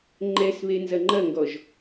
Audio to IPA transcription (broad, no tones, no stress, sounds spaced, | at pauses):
ŋ͡ǃ ɛ s β e n z ɐ ŋ͡ǃ ɐ ŋ ɡ ɔ ʒ